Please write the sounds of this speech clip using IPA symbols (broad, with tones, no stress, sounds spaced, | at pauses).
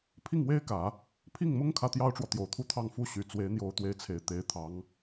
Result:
pʰ i˥˩ ŋ w e˥ ɪ̯ k ä˨˩˦ | pʰ i˥˩ ŋ m ʊ˥ ŋ kʰ ä˥ t̪ j ɑ˥ ʊ̯ ʈ͡ʂ w ɔ˨ t̪ j o˨˩ ʊ̯ t̪ʰ u˥˧ t̪ʰ ɑ˥˩ ŋ f u˥ ɕ y˨˩ t͡s w e˧˥ ɪ̯ n̪ j o˧˥ ʊ̯ t̪ w e˧˥ ɪ̯ t͡sʰ e˨˩ ɪ̯ t̪ e˧˥ ɪ̯ t̪ʰ ɑ˧˥ ŋ